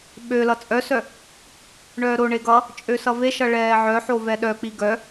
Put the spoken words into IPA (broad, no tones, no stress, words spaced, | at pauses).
ɓø lʌt͡sʼœsœ | ɳœːɾoɳe ɡʌ | t͡ʃʼøsʌveʃʌ ɭɛːʕœħo vɛɗœk͡pi ɡœ